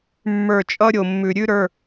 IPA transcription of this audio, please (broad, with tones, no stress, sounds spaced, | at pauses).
mː ə˞˧˩ t͡ʃʼ ʌ˦ ɾʲ o˩ mː ʉ˩ ɾʲ ʉ˦ ɾ ə˞˩˧˩